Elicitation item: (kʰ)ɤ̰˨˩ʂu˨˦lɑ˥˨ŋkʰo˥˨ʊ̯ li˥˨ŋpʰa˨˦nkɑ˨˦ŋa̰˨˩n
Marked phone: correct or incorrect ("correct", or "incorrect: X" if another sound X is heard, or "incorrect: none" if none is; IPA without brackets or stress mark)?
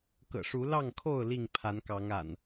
incorrect: k